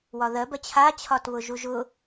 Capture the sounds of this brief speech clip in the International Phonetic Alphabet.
w ɒ ð ɜ b ɜ t͡ɕʰ a t͡ɕʰ ɒ t β ʊ ʒ u ʒ ʊ

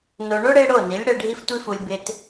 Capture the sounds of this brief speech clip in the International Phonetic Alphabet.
n o˨ ɳ o˦ ɽ e˧ ɽ o˦˨ n i˨˦ lʲ ɽ ɛ˧ ɖʱ i˦ f tʷ i˦ f u˧ lʲ b ɪ˧ t

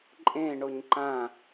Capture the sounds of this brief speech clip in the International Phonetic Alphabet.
ǃʼ ẽ ɳ o ɲ ǃ ã

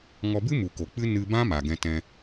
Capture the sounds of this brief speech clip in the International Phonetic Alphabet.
ŋ ɔ˧ b ɨ˦ m u˨ k o˨ k͡p ɨ˦ n ɨ˧ b ã˦ m a˨ ɡ ɛ̃˧ t ɛ̃˧

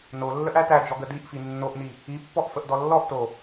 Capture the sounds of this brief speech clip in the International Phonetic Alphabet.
n o lː ə ʔ æ t æ d͡ʒ ɔ ɡ ə d i ʔ f i nː o ʔ n i | i pː ɔ ʔ f ə ʔ d ɔ lː ɔ ʔ t o

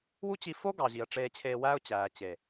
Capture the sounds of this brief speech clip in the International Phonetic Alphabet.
w u˦ t͡ɕ i˧ f o˦ ɡ ɑ˨ ʑ i˨ ə̯ ʈ͡ʂ eː˧ t͡ɕʰ eː˧ w æː˦ ʊ̯ t͡ɕ æː˨ t͡ɕ e˨

